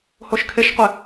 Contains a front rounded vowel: no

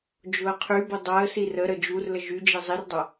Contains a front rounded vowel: yes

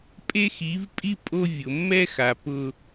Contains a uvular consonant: no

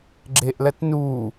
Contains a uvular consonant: no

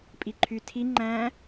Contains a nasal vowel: yes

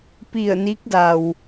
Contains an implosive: no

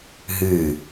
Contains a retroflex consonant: no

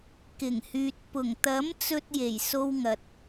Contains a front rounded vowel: yes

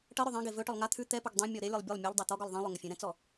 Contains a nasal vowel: yes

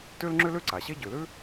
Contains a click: yes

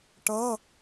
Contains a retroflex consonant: yes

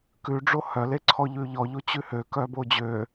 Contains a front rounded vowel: yes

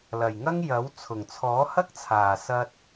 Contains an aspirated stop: yes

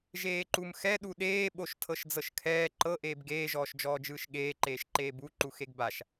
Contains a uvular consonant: no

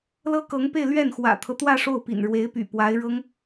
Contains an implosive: no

